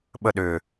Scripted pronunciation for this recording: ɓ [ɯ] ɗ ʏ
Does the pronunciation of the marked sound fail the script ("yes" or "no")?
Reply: yes